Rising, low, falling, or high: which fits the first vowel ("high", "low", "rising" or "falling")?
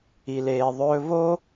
low